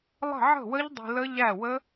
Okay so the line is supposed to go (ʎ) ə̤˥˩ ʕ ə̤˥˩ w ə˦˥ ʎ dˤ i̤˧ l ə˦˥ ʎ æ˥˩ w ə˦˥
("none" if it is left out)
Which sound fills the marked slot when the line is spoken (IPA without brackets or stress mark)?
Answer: lˠ